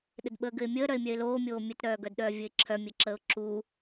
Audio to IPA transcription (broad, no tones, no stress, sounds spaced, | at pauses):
ɗ ɘ d ɓ əː ɡ ɘ ɪ̯ mʲ əː ɾ œ ɪ̯ mʲ œ ɪ̯ l oː mʲ oː mʲ ɘ t ɾ œː ɡ œ d ɗ œː vʲ ɘ ɪ̯ ǁʰ œ mʲ ɘ ǁ əː ʊ̯ ǁ u